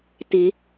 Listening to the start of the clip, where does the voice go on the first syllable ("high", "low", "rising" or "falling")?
rising